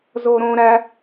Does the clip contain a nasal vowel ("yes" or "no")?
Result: yes